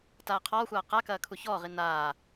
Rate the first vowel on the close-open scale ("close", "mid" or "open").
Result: open